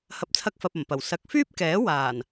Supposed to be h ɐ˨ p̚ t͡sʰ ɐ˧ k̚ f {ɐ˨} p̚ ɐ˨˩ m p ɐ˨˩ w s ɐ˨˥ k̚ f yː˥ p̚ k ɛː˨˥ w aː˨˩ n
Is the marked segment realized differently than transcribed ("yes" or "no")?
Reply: no